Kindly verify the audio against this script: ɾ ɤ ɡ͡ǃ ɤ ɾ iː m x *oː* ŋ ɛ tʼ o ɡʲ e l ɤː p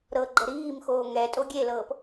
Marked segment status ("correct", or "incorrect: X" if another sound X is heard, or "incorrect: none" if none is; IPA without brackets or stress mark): correct